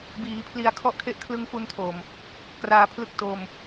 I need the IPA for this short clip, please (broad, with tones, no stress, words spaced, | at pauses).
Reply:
biː˩˦pʰli˧a̯kʰɔ˥˩ʔkʰe˥˩ʔ kʰlɯ˧ŋfu˧ntʰo˨˩m | kraː˧pʰlɯ˥˩k̚ to˧m